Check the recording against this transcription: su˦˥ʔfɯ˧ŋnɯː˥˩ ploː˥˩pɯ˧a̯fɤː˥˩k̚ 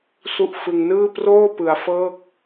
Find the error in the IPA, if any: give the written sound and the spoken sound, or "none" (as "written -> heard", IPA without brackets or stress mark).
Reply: l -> r